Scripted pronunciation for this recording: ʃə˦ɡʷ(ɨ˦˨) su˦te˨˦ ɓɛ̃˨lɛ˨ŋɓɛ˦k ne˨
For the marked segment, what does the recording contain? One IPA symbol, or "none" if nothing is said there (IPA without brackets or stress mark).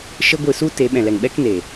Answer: ɨ˦˨